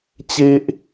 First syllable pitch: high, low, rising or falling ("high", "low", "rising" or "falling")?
high